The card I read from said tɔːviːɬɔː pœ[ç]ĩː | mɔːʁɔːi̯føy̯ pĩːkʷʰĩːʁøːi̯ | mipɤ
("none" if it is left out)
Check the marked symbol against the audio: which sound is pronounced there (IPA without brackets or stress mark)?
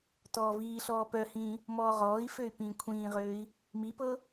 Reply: h